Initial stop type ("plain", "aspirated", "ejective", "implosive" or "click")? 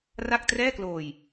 plain